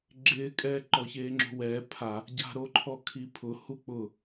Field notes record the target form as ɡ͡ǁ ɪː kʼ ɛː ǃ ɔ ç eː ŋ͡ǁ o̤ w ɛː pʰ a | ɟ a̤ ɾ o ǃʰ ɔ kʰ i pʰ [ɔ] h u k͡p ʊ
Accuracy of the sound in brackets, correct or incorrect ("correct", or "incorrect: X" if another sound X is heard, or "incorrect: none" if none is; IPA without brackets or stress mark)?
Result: incorrect: ʊ